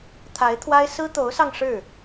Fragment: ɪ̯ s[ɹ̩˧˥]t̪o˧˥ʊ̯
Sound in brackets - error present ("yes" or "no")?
yes